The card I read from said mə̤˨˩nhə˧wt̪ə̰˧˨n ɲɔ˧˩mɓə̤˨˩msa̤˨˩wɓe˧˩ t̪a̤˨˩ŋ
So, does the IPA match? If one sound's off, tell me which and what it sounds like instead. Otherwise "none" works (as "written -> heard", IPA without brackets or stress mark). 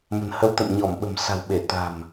ŋ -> m